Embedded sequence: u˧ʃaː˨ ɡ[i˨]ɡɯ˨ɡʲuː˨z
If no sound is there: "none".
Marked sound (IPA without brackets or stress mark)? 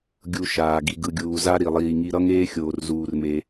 i˨